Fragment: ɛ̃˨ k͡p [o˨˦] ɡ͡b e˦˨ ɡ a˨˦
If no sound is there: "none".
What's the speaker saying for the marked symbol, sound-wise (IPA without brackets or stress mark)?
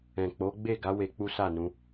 o˨˦